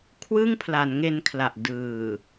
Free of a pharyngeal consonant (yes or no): yes